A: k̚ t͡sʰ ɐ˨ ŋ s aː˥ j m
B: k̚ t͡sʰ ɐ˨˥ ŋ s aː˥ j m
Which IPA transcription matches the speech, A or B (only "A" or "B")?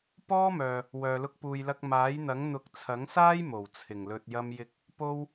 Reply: B